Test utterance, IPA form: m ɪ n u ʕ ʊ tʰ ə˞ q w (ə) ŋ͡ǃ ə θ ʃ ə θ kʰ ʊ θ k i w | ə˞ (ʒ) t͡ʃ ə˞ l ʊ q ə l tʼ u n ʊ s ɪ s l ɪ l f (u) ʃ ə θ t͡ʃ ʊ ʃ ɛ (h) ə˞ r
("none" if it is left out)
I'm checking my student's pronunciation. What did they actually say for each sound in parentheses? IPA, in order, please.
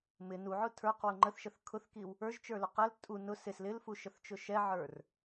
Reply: ʊ, ʒ, u, ʕ

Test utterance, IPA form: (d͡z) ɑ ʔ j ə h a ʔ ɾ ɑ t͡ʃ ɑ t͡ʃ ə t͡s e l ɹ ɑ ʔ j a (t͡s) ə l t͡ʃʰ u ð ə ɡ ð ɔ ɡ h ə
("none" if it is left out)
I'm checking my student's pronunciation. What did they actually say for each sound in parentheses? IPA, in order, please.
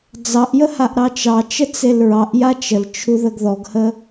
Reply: d͡z, t͡ʃ

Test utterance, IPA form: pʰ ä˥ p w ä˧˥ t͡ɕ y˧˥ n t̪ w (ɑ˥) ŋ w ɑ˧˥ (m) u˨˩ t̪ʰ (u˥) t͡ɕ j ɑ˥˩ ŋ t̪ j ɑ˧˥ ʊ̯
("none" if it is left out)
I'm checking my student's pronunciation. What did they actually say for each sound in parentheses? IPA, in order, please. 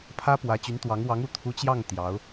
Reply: ɑ˧˥, ŋ, u˧˥

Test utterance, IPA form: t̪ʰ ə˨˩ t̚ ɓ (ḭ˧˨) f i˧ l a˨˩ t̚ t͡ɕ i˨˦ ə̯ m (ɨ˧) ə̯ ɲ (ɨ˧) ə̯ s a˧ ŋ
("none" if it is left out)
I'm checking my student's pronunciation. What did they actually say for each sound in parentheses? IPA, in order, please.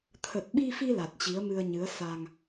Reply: i˧, ɨ˧, ɨ˨˦

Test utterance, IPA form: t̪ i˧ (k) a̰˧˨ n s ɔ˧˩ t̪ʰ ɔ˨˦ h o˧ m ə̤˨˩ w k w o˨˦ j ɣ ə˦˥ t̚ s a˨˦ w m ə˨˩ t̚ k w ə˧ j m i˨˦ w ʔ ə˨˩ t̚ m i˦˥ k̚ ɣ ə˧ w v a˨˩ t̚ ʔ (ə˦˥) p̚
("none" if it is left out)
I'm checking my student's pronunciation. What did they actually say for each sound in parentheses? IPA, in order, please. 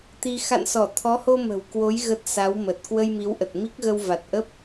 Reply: x, ə˦˥

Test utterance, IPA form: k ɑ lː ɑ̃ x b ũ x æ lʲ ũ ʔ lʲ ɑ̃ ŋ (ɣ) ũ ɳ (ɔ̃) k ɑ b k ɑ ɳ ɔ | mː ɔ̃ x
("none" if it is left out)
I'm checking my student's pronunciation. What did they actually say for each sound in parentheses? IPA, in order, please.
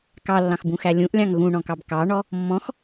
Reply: ɣ, ɔ̃

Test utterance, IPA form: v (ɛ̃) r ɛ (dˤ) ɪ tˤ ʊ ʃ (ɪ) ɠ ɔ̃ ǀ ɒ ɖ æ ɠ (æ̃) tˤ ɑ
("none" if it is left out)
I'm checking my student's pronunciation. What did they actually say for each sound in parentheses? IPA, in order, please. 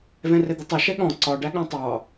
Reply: ɛ̃, d̪, ɛ, æ̃

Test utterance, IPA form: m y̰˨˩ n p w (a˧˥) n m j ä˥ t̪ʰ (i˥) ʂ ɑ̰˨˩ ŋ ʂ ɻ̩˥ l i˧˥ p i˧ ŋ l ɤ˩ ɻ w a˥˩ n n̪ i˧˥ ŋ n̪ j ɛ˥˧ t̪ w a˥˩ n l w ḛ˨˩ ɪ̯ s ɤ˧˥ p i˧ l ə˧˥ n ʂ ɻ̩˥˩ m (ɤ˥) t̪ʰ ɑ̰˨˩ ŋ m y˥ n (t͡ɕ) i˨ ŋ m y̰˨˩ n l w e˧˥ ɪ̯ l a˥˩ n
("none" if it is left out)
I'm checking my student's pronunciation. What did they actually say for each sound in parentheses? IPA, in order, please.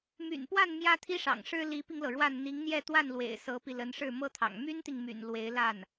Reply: a˥˩, i˥, ɤ˥, t̪

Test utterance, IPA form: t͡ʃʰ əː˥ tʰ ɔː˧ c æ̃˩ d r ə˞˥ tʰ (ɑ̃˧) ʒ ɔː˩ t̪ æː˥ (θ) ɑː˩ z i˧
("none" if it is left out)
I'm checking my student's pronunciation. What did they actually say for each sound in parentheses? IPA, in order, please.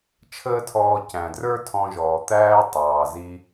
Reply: ɔ̃˧, tˤ

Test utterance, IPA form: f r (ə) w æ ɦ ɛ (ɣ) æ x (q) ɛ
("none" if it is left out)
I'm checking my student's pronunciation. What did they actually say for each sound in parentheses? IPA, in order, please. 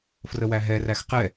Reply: ə, r, q

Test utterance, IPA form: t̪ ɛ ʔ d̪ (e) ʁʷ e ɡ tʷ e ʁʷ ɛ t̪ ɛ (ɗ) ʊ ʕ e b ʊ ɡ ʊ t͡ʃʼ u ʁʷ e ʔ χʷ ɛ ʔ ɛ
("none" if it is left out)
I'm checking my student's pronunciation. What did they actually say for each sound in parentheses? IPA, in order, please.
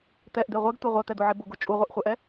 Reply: e, d̪

